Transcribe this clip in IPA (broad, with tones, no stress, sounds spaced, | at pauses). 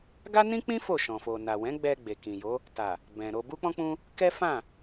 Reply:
ɡ a˦ n ĩ˦ k͡p ĩ˦ f o˦˨ ʃ ɔ̃˨ f o˨ n a˨ w ɛ̃˨˦ ɡ͡b ɛ˧ ɡ͡b e˨ k ĩ˨ j o˨˦ | t a˨ | b ɛ̃˨ ɾ o˧ b u˦ k͡p ɔ̃˦ k͡p ũ˦ | k ɛ˦ f ã˦˨